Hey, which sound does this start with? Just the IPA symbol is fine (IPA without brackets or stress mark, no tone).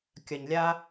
kʲ